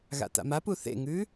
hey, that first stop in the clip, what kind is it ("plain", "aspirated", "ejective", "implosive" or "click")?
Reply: plain